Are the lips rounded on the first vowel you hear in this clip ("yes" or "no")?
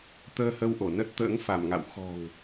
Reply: no